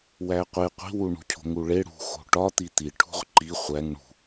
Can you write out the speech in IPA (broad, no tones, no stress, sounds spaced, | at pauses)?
w æ qʷ e qʷ i̤ w u ɳ ṳ cʰ o̤ ŋ u ɭ e ɽ ṳ x o̤ ʈ ɒ t̪ i t̪ i ʈʰ ṳ ʁ ǃ i χʷ æ ŋ ɳ ṳ